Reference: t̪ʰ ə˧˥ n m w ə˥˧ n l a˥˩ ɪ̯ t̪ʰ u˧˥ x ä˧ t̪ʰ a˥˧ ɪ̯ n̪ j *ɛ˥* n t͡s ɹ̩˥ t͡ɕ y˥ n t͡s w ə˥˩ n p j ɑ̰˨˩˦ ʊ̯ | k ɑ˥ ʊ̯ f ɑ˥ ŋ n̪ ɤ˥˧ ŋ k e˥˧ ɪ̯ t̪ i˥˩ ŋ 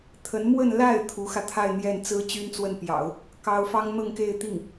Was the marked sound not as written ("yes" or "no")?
yes